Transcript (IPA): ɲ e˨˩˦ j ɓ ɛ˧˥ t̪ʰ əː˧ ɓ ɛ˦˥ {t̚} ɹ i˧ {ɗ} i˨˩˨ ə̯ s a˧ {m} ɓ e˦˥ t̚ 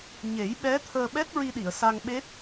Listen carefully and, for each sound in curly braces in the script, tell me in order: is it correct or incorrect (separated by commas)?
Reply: correct, correct, incorrect